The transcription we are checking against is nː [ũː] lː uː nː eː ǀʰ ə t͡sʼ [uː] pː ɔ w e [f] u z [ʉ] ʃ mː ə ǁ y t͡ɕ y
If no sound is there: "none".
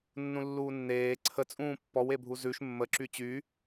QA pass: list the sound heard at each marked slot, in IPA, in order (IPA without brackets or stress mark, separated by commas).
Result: ũ, ũː, bʱ, ʉ